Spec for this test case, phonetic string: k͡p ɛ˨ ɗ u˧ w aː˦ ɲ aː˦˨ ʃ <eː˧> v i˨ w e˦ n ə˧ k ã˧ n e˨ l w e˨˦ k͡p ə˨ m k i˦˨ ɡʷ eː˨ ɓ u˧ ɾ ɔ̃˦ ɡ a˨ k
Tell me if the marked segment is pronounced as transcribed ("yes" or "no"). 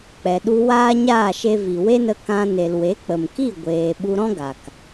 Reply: no